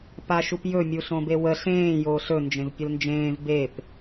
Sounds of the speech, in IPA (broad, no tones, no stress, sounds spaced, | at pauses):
p a ʃ u p j ɵ mʲ u ɬ õ b e w ə ɬ ẽː j oː ɬ ɵ n d͡ʒ ẽ v pʲ ə l n d͡ʒ ẽː v b e p